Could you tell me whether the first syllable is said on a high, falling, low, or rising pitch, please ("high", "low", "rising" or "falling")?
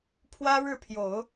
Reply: high